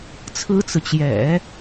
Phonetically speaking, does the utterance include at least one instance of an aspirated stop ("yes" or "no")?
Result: yes